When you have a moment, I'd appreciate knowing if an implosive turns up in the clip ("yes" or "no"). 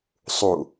no